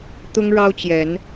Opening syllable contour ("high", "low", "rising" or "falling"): high